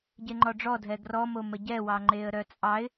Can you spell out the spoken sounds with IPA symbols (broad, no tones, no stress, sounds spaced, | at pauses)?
ɟ e ŋ͡ǃ ɔ ɖ͡ʐ ɔ dʱ ɛ ɡ r ɔ m o m ə ɟ ɛ w ɑ ŋ͡ǃ e ə̯ ɾ œ t͡sʼ ɑ ɪ̯